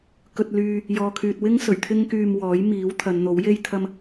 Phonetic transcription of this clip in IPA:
k ɵ˧ t̚ l yː˧ | j ɔː˨ kʰ yː˨ t̚ w ɪ˥ ŋ s ɵ˨˩ ɥ t̪ʰ ɪ˥ ŋ k yː˧ m w ɔː˨˥ j m iː˨˥ w t̪ʰ ɐ˨˧ n n̪ o˨˥ w j e˥ j t̪ʰ ɐ˥ m

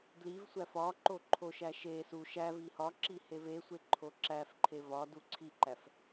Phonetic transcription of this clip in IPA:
d l i v sʷ æ f ɒ ǃ o ǃʰ o ʃ æ ʃ e s u ʃ æ v i h ɒ ǁ i h e v e sʷ e ǃʰ o ǁ æ f ǃʰ e v ɒ d u ǀʰ i ǃ æ f

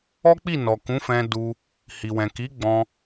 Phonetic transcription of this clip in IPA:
ɔ˦ k͡p i˦˨ n ɔ˨ k ũ˨˦ f ɛ̃˧ d u˧ | h i˨ w ɛ̃˨ k i˨˦ ɡ͡b ɔ̃˧

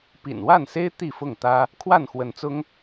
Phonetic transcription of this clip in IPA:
p ḭ˨˩ n w a˥˨ n s e˦ ɪ̯ t̪ i˥˨ f ʊ˥˨ ŋ t̪ ä˦ | kʰ w a˥˨ n x w ə˨˦ n t͡s ʊ˦ ŋ

